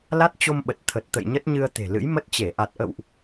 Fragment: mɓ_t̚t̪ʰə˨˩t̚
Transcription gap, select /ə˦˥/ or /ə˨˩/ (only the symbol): ə˨˩